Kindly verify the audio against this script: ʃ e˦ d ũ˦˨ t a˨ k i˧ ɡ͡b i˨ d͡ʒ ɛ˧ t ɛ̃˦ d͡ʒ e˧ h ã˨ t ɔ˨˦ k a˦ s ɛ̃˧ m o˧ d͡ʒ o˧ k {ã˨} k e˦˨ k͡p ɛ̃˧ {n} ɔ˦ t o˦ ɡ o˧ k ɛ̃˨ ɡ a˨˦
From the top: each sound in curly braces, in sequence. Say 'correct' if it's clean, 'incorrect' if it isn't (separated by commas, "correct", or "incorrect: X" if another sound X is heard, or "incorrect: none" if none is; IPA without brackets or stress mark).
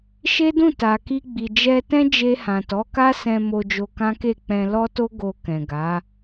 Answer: incorrect: ã˦, incorrect: l